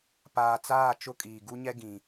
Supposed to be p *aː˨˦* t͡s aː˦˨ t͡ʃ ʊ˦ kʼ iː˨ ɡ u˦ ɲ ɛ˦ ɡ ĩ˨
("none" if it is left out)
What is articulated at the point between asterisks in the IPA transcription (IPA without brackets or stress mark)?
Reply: aː˨